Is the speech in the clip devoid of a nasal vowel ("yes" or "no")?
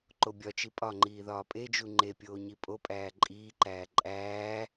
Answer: yes